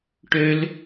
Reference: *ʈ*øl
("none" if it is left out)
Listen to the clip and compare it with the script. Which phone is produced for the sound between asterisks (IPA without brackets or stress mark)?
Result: ʈ